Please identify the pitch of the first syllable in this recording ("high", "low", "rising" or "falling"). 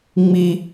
high